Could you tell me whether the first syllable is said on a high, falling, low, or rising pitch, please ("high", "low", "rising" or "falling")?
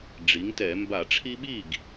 rising